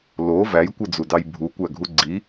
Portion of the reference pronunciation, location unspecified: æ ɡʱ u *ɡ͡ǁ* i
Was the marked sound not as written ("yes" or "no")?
yes